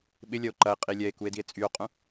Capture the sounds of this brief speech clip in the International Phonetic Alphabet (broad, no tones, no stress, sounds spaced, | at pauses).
ɓ ɪ lʲ ɐ o̯ ǃ ɐ e̯ qʼ i lʲ ɛ e̯ k u e̯ d i e̯ t͡sʼ y o̯ qʼ ũ